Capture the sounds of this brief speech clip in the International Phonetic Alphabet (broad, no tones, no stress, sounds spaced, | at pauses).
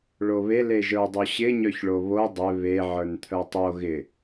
ɭ o β e l e ʒ ə˞ dˤ o ɕ ɪ ɲ œ ç ɭ o β o dˤ ɪ β e ʕ ə˞ n t̪ʰ œ tˤ o ɣ ɪ